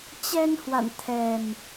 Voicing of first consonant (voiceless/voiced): voiceless